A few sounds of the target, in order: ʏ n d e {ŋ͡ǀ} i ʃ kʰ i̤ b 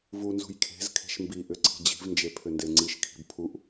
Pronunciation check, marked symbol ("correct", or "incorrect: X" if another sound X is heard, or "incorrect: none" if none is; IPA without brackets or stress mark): correct